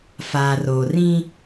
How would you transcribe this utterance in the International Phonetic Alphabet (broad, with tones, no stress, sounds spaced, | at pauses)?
f aː˨ r oː˨ r ĩ˦